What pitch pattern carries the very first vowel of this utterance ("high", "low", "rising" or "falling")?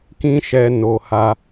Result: high